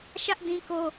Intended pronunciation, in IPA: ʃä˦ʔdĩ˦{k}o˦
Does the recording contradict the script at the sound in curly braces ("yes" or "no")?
no